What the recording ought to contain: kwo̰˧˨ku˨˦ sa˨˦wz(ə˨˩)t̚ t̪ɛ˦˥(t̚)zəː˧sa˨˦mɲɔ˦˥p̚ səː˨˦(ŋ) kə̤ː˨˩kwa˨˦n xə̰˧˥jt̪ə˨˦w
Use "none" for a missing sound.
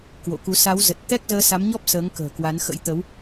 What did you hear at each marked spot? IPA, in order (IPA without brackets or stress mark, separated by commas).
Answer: ə˨˩, k̚, ŋ